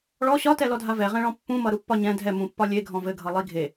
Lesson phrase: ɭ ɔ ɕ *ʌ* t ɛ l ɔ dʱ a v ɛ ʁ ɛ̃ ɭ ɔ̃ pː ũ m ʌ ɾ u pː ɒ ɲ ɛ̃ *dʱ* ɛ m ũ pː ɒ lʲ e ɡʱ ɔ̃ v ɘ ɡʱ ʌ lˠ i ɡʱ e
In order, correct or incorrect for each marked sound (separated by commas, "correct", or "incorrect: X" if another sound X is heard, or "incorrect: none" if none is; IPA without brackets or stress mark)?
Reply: incorrect: ɒ, correct